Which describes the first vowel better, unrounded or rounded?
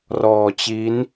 rounded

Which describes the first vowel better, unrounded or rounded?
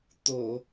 rounded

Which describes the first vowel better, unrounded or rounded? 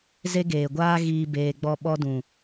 unrounded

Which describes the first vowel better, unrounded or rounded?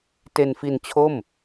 unrounded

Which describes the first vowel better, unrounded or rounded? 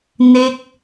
unrounded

